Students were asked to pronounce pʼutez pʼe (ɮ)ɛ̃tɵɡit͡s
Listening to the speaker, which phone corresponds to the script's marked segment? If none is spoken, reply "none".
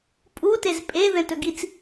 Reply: ð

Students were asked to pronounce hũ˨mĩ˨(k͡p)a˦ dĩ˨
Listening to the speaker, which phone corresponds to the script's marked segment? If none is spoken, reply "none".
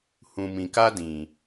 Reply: k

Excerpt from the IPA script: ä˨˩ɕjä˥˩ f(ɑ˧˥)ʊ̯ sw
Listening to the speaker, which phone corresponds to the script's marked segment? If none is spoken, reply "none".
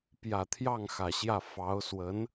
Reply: ɑ˧˥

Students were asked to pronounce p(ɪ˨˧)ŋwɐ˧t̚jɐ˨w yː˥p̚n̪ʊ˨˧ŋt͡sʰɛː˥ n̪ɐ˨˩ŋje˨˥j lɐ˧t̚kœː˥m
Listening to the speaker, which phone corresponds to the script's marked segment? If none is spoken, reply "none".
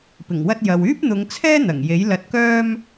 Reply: ɪ˨˩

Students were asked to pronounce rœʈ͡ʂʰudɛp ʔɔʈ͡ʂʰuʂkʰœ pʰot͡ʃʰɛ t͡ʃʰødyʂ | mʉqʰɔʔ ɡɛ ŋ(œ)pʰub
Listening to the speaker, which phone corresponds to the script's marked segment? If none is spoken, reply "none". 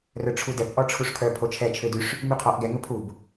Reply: ɵ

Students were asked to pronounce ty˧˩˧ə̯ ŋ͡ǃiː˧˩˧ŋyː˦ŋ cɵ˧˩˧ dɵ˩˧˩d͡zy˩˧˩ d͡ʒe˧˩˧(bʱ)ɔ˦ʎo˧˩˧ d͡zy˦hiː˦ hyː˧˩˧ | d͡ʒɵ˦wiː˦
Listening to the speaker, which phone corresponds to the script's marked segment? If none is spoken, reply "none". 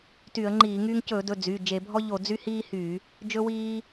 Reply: bʱ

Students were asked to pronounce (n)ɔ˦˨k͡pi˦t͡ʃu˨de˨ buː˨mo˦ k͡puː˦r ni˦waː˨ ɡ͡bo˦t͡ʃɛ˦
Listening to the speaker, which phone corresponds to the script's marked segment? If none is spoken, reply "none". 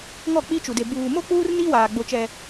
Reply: ŋ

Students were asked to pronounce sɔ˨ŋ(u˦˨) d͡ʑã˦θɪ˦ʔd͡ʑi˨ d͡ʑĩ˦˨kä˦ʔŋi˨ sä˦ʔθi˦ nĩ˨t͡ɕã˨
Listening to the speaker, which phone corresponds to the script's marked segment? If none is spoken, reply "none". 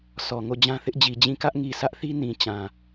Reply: o˦˨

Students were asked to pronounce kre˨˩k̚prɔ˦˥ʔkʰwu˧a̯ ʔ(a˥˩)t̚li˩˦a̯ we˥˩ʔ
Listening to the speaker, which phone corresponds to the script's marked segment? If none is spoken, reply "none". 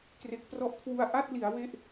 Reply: a˥˩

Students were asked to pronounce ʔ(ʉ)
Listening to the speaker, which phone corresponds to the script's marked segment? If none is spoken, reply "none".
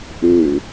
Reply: ʉ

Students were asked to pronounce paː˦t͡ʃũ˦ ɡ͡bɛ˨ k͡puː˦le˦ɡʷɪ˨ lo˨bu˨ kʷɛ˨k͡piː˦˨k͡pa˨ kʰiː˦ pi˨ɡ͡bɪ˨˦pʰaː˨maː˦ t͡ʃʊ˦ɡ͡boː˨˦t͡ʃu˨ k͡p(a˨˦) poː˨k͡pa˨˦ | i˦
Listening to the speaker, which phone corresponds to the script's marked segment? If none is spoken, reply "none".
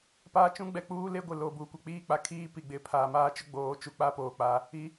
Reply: a˦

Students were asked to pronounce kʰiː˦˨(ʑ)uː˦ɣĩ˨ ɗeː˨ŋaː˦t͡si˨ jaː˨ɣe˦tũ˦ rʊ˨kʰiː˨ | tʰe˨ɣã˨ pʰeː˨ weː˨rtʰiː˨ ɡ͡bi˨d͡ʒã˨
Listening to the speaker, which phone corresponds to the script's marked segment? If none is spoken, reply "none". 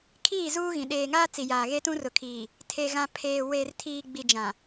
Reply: z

